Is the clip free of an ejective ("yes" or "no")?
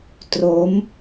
yes